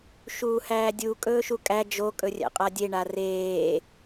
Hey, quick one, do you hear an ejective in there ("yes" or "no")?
yes